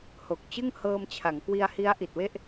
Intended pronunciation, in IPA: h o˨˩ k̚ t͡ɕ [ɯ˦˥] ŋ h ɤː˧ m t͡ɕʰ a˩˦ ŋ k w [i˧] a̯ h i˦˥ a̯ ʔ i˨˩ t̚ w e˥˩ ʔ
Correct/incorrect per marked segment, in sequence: incorrect, correct

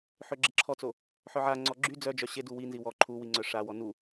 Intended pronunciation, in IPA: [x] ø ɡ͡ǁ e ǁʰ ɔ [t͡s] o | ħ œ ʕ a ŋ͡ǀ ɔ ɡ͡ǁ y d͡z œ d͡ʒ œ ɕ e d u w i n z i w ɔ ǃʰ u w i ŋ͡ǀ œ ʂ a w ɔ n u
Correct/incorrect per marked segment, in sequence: incorrect, correct

